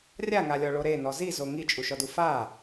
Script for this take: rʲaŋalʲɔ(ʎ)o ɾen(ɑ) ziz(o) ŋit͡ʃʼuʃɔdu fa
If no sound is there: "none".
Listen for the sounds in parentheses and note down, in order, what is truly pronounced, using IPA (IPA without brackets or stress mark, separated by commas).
ɭ, ɔ, o